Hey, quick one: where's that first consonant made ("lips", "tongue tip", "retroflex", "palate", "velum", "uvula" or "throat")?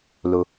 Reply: tongue tip